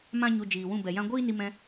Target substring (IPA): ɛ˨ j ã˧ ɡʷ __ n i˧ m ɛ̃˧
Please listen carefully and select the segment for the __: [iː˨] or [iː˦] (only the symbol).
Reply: iː˦